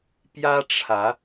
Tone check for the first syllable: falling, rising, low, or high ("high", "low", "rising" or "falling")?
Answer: high